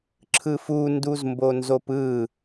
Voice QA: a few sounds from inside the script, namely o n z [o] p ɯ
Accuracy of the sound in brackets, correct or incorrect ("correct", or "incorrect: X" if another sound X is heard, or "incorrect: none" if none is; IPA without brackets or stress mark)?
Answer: correct